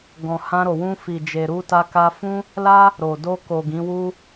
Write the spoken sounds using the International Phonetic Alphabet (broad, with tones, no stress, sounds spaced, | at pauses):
ɡ ɔ̃˨ h ã˧ ɾ o˨ w ũ˧ f i˨ d͡ʒ e˨ ɾ u˧ t a˧ k a˧ f ũ˦ | l a˦ | ɾ o˨ d o˧ k o˨ ɡ ĩ˨˦ w u˦